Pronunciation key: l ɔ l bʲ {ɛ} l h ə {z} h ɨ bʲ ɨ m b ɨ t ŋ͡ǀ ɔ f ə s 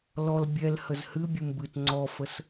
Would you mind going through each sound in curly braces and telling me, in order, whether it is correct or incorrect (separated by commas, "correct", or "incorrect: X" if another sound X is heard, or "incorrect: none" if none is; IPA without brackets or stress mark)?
correct, correct